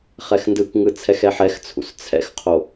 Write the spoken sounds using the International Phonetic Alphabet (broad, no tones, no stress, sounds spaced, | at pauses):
χ ɛ x n d ɯ k ŋ ɯ t͡sʰ ɛ x ɛ ħ ɛ x t͡sʰ ṵ s t͡sʰ ɛ̰ x qʰ o